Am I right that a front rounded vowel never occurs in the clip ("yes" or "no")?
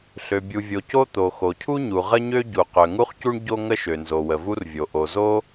no